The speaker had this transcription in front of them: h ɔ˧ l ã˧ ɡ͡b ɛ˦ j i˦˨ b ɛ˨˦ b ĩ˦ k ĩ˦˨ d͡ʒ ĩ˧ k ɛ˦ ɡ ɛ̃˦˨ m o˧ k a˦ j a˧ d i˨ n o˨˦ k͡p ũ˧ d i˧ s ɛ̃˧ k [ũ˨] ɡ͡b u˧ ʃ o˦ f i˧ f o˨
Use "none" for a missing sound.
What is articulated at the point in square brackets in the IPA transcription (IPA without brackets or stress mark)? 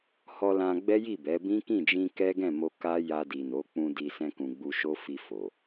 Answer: ũ˨